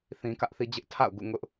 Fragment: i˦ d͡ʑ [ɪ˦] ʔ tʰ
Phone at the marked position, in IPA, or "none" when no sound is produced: ɪ˦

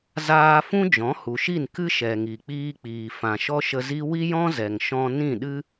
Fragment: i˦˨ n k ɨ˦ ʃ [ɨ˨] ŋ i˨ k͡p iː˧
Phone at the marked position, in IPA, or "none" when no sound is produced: ɛ˨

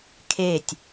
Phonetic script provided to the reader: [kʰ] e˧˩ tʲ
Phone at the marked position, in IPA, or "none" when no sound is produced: kʰ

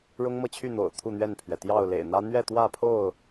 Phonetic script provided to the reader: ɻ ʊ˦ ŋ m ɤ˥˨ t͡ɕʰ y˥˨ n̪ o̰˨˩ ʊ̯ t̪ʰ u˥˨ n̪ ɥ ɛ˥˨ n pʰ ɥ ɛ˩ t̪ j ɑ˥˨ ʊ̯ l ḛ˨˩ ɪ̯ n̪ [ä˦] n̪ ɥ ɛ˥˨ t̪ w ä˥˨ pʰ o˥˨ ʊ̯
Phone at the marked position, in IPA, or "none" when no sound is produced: ä˦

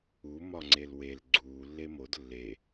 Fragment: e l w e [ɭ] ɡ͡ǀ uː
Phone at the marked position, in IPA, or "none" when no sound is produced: l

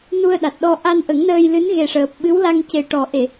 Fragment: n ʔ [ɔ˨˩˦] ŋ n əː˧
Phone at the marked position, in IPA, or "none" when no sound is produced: ə˨˩˦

